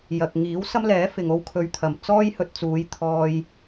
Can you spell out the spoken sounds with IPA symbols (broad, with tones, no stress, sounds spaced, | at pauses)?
j ɐ˨ k̚ ŋ iː˨˥ w s ɐ˥ m l ɛː˨˥ f ɪ˨ ŋ o˧ w kʰ ɵ˨ ɥ t̪ʰ ɐ˨˩ m t͡s ɔː˥ j h ɵ˧ t̚ t͡s uː˨˧ j t̪ʰ ɔː˧ j